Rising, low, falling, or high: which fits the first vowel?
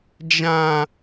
high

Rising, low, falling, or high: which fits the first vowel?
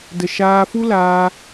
low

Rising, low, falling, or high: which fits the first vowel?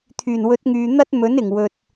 low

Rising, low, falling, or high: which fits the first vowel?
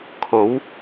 rising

